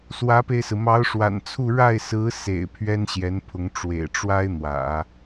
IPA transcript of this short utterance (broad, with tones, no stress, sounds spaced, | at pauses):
s w ä˧˥ p e˧ ɪ̯ s ɹ̩˩ m ɑ˧˥ ʊ̯ ʂ w a̰˨˩ n t͡sʰ u˥˧ ɻ a˥˩ ɪ̯ s ɹ̩˧˥ s ḛ˨˩ ɪ̯ pʰ ɥ ɛ˥ n ɕ j ɛ˧˥ n pʰ ʊ˧˥ ŋ ʈ͡ʂ w ḛ˨˩ ɪ̯ ʈ͡ʂ w a˥ ɪ̯ n̪ w ä̰˨˩˦